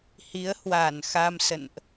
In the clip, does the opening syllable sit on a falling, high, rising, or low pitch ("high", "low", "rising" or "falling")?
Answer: rising